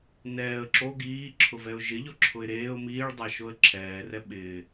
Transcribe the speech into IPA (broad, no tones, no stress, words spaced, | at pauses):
nɛːə̯ ǁo ɡiːǁʰʊvɛʊ̯ ʒɪʎɔǁʰʊɪ̯ ɾeːʊ̯ miːɭdˤaʃoə̯ ǁʰɛːrɛ ɓɪː